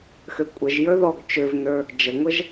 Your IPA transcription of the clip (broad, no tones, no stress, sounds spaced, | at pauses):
x ø kʷʼ ə ʒ j ə˞ ð ɔ ɡ t͡ʃ ø v n ə˞ | d͡ʒ ə ŋʷ ə ʒ